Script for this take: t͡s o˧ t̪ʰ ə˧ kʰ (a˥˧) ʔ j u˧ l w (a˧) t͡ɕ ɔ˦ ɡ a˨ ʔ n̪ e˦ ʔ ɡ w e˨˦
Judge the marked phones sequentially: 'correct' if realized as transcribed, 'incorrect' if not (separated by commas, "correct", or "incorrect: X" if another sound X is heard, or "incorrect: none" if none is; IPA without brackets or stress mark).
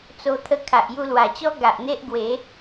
incorrect: a˨, incorrect: a˨˩